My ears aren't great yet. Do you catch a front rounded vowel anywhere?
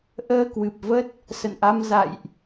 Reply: no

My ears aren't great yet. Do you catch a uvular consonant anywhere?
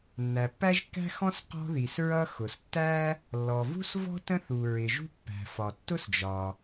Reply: yes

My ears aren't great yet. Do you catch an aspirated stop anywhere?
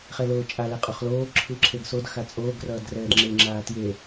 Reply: yes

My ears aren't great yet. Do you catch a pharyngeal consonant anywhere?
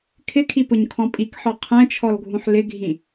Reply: yes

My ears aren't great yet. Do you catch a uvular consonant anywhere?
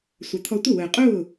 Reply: yes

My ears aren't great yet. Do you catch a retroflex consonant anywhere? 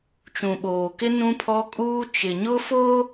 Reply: no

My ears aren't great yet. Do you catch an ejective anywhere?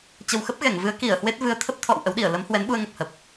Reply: no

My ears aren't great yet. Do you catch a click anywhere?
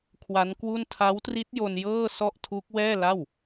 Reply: no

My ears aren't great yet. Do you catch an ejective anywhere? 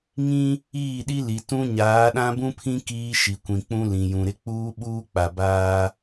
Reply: no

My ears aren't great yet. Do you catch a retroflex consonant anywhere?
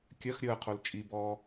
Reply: no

